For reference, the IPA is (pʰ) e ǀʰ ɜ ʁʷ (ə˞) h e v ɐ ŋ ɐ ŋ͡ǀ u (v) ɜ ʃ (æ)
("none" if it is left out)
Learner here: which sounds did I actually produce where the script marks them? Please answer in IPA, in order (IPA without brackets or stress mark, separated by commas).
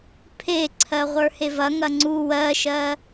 pʰ, ə˞, w, ɜ